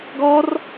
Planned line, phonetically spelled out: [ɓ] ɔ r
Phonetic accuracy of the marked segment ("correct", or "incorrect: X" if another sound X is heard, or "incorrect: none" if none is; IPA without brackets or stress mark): incorrect: ɡ